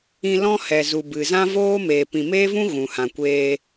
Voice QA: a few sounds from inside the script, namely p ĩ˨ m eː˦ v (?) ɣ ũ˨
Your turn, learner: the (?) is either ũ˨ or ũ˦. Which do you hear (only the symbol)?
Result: ũ˦